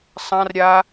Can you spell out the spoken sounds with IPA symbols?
sˤ ã r ɾʲ a

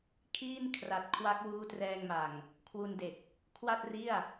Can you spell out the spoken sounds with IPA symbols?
kʰ iː˥˩ n kʰ r a˨˩ t̚ kʰ w a˦˥ k̚ w uː˦˥ t r ɛː˧ ŋ m a˨˩ ŋ | kʰ w u˧ n d e˨˩ k̚ | kʰ w a˥˩ t̚ r i˥˩ a̯

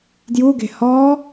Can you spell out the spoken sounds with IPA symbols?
d j u ɡ e̤ h ɔ

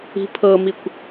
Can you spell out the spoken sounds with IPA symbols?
i̤ pʰ ɤ m i kʷ

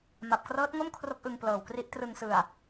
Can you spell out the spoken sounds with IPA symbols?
m a˨˩ p̚ k r ɤː˦˥ t̚ ŋ o˥˩ m kʰ r o˦˥ k̚ ʔ ɯ˧ ŋ p l ɤː˨˩ w k r i˦˥ ʔ t r ɯ˨˩ ŋ s ɯ˨˩ a̯

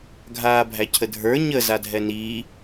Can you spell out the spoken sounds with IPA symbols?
ɡʱ aː bʱ æ cʰ ə dʱ ə˞ ɲ ə z a dʱ ɛ n iː

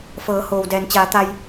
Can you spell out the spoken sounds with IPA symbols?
f ɤː˩˧ h oː˩ w d ɛː˩ n t͡ɕ aː˩˧ t̪ a˧ j

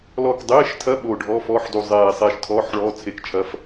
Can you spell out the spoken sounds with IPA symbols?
l ɔ˧˩ k dˤ eː˧˥˧ ʃ tʰ ɐ˧˥˧ ɓ oː˧˩ ɖʱ ɔ˧˥˧ f ɔː˧˥˧ ħ d u˧˩ zˤ eː˧˩ sˤ eː˧˩ ʃ tʰ ɔː˧˥˧ ħ ɭ ɔː˧˥˧ t͡sʰ e˧˥˧ k t͡ʃʰ ɐ˧˥˧ f

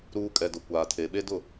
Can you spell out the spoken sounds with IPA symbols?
ɾ uː˨ kʼ ɛ˨ d ʊ˨ kʷ aː˨ tʰ e˨ ɓ e˦ d ʊ˦˨

